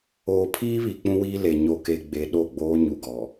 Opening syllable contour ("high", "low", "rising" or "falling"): low